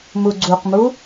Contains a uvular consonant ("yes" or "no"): yes